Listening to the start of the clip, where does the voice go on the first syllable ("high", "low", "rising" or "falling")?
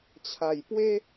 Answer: low